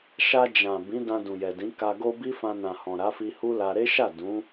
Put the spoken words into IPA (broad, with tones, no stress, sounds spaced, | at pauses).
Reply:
ʃ a˧ d͡ʒ ã˨ b ĩ˨˦ d ã˧ d ũ˨ j ɛ˨ d ĩ˨˦ k a˧ ɡ o˦ b i˦ f ã˧ n ã˨ h ɔ̃˨ ɾ a˨˦ f i˧ h u˦ l a˧ ɾ e˦ ʃ a˦˨ d ũ˨˦